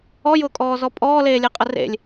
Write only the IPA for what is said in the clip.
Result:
ɔ j ʊː kʼ ɔː z ɔ pʼ ɔː l eː lʲ e qʼ ə r ḛ lʲ

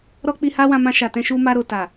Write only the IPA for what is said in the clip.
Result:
ɾ ɔ˦ k͡p i˧ h a˦ w ã˧ m ã˧ ʃ a˨ t ɛ̃˧ ʃ u˧ m a˧ ɾ o˨ t a˨

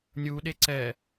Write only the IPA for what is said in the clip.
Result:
nʲ u ɗ e ǀ ɛ

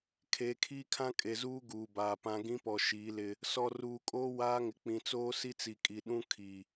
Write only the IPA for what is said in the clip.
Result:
kʰ eː˨ kʰ iː˦ kʰ ã˦ kʼ e˨ z uː˦ ɡ uː˨ b aː˨ p ã˦ ɡ ĩ˦ p ɔ˨ ʃ iː˨˦ l ɪ˦ | s ɔ˨ r uː˨ kʼ oː˦ w aː˦ ŋ ɪ˨ k͡p ĩ˨ t͡s oː˦ s i˦ t͡s i˨ kʼ i˨ ɗ ũ˦ kʰ i˨

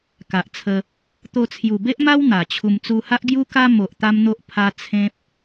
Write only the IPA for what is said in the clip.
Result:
k a˨ ʔ t͡sʰ ə˧ | t̪ o˧ t͡sʰ j u˨˩ b e˦ ʔ m a˦ w n̪ a˨˩ t͡ɕʰ u˧ m t͡s u˧ h a˦ ʔ ɡ j u˦ k a˦ m o˨ ʔ t̪ a˦ m n̪ o˦ ʔ pʰ a˦ t͡sʰ ẽ˦ p̚

